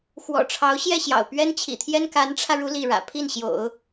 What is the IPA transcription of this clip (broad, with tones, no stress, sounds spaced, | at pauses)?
x w ɔ̰˨˩ ʈ͡ʂʰ ɑ˧˥ ʊ̯ ɕ j ɛ˥˩ ɕ j ɑ̰˨˩ ʊ̯ p ɥ ɛ˥ n t͡ɕʰ ḭ˨˩ t̪ʰ j ɛ˥ n k a˧˥ n ʈ͡ʂʰ ä˧ ɻ u˥ l i˥˩ ɻ ä̰˨˩ pʰ i˥˩ n ɕ j o̰˨˩˦ ʊ̯